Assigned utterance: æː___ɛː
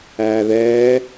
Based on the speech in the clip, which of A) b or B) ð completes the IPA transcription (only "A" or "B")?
B